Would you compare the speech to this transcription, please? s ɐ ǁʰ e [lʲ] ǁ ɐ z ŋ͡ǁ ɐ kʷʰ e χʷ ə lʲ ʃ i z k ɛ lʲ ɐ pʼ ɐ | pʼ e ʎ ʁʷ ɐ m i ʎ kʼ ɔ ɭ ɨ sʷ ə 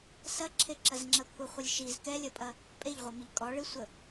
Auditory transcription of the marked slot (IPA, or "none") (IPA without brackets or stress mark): none